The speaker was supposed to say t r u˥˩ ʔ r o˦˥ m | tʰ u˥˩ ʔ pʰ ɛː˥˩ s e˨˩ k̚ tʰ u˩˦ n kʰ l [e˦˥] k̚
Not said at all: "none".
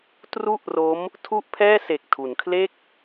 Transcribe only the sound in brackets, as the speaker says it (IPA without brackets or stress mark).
e˥˩